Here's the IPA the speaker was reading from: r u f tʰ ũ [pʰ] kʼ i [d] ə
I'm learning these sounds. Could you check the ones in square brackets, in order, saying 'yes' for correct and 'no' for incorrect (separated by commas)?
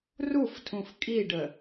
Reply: no, no